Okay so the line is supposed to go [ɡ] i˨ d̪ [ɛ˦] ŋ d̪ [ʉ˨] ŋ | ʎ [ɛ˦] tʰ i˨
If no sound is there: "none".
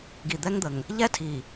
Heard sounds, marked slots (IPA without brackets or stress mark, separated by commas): ɡ, ɛ˦, ə˨, ɛ˦